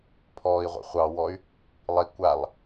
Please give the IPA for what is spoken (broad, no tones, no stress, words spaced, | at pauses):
pʰɔːi̯ʁʷḭ χʷɑwɔy̯ | lˠi kʷalˠ